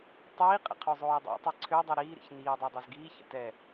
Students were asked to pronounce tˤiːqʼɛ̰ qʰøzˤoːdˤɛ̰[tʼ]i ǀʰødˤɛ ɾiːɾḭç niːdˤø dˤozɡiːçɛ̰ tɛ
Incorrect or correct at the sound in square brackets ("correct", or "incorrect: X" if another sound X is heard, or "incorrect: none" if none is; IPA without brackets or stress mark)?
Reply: incorrect: tˤ